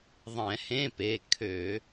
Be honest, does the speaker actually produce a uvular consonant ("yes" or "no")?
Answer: no